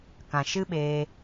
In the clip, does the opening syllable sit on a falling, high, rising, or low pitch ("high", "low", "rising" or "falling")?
low